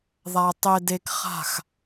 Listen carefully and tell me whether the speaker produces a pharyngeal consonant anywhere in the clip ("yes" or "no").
no